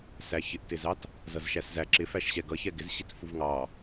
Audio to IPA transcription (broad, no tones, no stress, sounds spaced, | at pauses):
s æ ç ɪ ʔ t ɪ z ɑ t | z ʌ z ʃ æ s z æ ǁ ɪ f æ ʃ ɕ ɛ ɡ ʌ ç ɛ ɡ ɪ z ɕ i t f u v ŋ ɑ